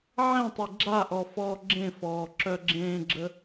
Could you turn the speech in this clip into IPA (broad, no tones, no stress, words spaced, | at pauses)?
ʕẽtˤi ɡ͡ǁaʔɔ fɔːɡ͡ǁẽfɔː ǁœɡ͡ǁẽːɡ͡ǁə